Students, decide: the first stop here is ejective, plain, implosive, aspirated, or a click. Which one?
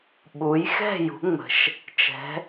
implosive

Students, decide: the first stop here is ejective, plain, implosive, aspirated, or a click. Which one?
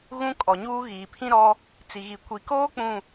ejective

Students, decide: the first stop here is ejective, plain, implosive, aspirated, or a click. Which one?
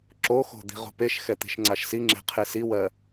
click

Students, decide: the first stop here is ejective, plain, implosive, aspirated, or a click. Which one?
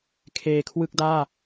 aspirated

